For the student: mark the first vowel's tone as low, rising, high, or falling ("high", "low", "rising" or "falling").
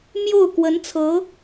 falling